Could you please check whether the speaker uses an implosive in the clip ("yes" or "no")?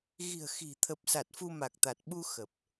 yes